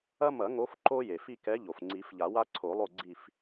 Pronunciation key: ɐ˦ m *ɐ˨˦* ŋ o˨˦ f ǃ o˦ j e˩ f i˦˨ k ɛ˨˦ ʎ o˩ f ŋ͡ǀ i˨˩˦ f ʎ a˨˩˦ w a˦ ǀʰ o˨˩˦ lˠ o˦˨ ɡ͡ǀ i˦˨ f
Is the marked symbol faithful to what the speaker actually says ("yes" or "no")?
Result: no